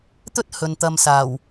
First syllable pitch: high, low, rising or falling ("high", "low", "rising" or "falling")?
high